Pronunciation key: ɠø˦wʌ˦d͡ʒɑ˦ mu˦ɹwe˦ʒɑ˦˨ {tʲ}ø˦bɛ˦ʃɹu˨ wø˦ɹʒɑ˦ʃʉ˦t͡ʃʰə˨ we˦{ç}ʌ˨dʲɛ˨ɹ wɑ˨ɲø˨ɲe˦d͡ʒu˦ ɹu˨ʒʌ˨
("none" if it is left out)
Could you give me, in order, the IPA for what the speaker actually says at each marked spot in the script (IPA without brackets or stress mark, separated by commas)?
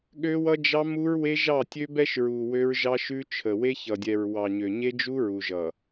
tʲ, ç